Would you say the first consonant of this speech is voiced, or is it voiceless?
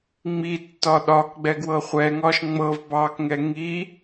voiced